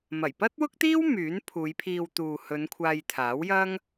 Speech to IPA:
m ɐ˨˩ j p ɐ˥ t̚ w ʊ˥ k̚ t̪ iː˥ w m yː˨˥ n pʰ uː˨˧ j pʰ iː˧ w t̪ uː˨ h ɵ˨˧ n kʷʰ aː˧ j t̪ʰ aː˨˥ w j ɐ˥ ŋ

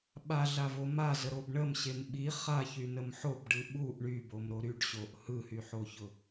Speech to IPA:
ɓ a ɮ a v o m a z ə ɾ o b ɳ ə m ɕ e m ɓ i χ a ç y n ə m ħ o b ɖ ɯ ɓ u ʔ ɳ y b o m ɾ o ɾ y ɖ ɕ o ʔ h ɯ h y ħ o ç ʊ

